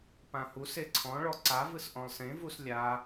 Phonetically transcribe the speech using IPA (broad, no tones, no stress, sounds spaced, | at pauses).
p ã h u s e ǀʰ ɔ̃ ɭ ɔ ǀ a v ɯ s ʔ ɔ̃ lˠ s ẽ v u s lʲ a